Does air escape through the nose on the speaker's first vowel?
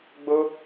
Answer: no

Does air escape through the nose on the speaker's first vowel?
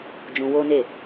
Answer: yes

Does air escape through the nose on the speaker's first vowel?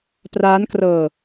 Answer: no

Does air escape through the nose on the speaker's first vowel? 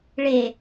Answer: no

